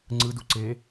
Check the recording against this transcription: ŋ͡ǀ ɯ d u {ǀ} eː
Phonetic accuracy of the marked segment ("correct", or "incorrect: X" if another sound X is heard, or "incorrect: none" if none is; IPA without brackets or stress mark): correct